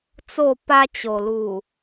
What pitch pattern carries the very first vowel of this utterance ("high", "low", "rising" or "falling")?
falling